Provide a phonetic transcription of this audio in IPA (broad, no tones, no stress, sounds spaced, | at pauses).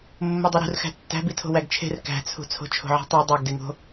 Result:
mː o dˤ e ɾ ṳ r x æ̤ tː æ̤ b i tʰ o̤ w æ ɡ t͡ʃʰ e̤ r k æ̤ t͡sʰ ṳ t͡sʰ o̤ t͡ʃʰ o̤ ʕ i̤ tˤ u dˤ æ ɡ d e ŋ o̤